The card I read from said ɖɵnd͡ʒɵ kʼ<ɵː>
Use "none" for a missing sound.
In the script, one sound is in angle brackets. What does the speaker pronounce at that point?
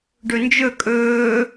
ɵː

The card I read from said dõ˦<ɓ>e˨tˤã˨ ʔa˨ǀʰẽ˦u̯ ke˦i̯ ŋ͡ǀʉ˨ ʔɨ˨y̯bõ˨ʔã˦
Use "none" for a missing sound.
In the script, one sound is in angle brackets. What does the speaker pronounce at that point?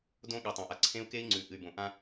ɠ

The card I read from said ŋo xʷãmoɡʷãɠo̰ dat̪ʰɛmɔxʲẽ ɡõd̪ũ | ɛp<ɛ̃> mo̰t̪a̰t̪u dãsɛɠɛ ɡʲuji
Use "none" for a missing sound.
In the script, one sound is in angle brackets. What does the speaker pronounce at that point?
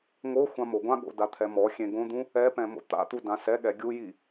ɛ̃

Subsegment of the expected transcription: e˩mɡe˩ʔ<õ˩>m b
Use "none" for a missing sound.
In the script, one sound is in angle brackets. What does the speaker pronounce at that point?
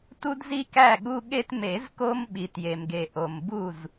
o˩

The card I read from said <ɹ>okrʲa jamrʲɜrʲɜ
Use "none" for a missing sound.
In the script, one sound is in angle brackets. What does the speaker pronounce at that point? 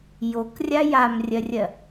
j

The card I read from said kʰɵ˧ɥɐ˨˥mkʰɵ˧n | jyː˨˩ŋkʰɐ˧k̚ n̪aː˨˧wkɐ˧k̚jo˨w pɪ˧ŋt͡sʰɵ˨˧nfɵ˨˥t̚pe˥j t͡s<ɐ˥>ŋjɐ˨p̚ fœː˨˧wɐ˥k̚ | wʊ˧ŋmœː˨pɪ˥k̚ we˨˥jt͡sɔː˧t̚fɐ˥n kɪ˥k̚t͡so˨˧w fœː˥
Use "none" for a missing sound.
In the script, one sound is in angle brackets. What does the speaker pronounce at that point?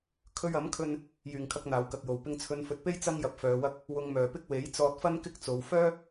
ɐ˥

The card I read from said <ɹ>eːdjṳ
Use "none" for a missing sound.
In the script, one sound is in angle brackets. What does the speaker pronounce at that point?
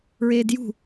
ɹ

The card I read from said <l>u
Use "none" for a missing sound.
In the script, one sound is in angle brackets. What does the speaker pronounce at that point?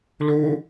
l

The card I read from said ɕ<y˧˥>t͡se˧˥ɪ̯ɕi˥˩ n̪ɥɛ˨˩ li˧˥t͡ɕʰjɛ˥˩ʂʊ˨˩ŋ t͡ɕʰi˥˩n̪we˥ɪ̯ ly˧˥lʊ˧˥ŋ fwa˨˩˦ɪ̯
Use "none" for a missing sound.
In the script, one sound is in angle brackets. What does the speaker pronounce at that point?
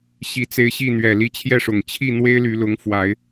i˧˥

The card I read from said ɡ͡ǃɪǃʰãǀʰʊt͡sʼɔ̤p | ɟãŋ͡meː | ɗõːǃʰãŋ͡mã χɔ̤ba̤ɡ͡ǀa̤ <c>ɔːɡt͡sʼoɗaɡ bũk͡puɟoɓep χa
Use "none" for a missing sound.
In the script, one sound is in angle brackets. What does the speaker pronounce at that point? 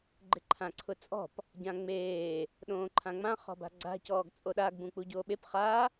c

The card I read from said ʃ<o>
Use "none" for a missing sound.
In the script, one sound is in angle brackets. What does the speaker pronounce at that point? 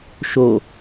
o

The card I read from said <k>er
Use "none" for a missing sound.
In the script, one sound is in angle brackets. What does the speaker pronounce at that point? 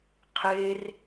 qʰ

